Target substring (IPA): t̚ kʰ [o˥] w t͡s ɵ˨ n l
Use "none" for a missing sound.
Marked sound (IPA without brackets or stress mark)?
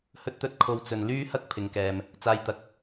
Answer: o˧